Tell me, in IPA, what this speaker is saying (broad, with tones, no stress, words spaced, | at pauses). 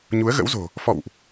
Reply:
ɲu˨˦ə̯ɣə̰˧˥wzo̤˨˩ | fɔ̰˧˨wʔ